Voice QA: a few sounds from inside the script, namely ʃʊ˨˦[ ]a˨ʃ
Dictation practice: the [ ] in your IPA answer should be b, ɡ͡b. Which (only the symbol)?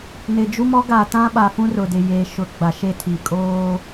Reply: ɡ͡b